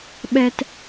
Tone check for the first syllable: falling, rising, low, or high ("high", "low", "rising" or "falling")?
high